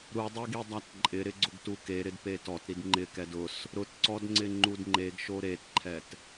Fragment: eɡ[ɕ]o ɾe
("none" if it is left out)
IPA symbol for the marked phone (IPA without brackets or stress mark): ʃ